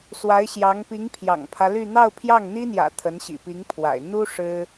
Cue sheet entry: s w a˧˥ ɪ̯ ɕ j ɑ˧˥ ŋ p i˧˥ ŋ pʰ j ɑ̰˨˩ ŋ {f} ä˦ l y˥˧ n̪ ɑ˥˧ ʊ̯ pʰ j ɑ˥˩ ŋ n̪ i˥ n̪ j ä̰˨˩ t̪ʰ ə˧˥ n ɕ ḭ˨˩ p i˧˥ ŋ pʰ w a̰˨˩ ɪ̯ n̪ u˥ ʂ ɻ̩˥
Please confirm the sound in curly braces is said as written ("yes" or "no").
no